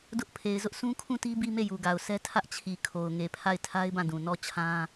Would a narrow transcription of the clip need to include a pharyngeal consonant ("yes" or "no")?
no